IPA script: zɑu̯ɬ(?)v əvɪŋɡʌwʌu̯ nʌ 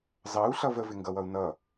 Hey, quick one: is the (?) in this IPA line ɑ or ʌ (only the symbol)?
ʌ